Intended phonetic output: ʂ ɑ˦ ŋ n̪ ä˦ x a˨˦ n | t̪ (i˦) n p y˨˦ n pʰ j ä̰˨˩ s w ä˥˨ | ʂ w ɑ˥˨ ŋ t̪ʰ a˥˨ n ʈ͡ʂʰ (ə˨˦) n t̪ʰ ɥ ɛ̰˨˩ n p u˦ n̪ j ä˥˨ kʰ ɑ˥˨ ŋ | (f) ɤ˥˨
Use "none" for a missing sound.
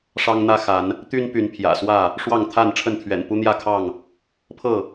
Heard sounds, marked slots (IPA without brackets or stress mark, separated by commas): y˦, ə˥˨, pʰ